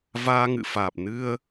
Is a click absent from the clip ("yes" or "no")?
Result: yes